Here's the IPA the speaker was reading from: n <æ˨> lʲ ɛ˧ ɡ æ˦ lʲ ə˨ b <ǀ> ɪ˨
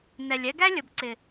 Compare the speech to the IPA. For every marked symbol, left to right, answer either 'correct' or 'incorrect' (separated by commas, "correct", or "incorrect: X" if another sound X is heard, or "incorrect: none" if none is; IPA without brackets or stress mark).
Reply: incorrect: ɛ˨, correct